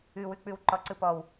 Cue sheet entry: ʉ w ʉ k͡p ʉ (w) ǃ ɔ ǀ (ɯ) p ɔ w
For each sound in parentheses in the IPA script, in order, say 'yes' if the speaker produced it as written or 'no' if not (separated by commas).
yes, yes